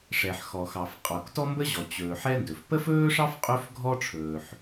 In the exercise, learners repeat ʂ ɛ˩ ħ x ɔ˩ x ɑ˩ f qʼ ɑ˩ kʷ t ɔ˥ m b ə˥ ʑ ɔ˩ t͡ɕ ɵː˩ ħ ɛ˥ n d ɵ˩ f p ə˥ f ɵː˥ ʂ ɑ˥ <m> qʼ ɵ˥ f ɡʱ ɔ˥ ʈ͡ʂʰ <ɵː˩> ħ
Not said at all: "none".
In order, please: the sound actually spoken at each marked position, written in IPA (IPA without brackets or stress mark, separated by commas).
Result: f, ɵː˩